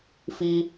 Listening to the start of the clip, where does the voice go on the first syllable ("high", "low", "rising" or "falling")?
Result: low